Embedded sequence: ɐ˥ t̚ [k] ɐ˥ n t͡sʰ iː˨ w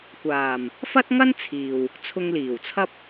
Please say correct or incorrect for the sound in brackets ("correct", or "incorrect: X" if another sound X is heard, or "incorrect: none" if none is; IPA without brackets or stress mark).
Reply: incorrect: ŋ